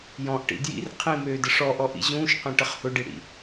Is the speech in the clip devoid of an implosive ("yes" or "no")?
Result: yes